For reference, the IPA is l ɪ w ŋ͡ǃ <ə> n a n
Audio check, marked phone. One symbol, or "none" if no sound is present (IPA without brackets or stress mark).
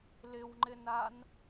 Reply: ɪ